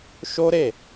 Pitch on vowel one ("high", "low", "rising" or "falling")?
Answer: high